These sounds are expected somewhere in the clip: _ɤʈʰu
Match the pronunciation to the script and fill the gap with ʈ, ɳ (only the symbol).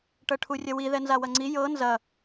ʈ